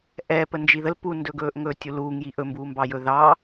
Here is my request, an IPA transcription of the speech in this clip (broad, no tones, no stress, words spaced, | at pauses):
ʔɛpə nd͡ʒiðəl pundɵɡɵːʔŋɵː tʲuluːŋji ʔɵmbuːmbɑ jɵðɑː